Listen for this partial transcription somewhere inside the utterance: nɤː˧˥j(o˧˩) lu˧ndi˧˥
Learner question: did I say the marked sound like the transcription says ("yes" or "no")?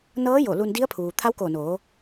yes